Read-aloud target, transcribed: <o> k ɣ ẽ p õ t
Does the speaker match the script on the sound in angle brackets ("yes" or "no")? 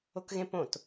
yes